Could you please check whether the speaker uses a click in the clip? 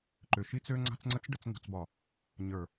yes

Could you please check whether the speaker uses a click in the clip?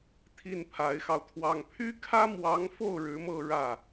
no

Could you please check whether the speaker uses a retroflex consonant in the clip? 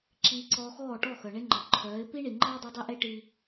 yes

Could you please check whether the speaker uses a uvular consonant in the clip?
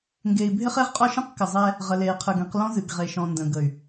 yes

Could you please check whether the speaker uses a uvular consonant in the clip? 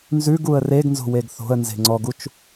no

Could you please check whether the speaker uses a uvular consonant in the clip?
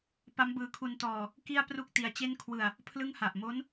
no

